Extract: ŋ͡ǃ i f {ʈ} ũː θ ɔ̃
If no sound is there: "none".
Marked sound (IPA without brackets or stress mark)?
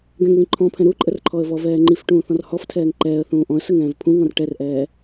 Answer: ʈ